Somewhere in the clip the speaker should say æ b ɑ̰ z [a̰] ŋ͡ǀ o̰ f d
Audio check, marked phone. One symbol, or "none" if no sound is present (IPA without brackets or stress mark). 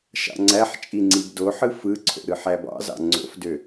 ɑ̰